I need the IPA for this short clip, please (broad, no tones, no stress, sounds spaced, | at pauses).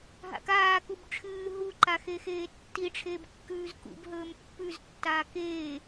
ɦ a̰ k aː k u b ʈ͡ʂʰ ɨː ɦ u ǃ a x e x eː tː i ʈ͡ʂʰ eː b kː ʉː z k ṵ b ɦ ɵː m pː ʉ z tː aː k eː